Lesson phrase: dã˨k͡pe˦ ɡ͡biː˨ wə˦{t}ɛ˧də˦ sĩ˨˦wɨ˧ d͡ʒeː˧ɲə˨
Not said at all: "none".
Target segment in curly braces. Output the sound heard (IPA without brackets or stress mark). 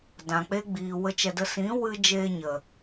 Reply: t͡ʃ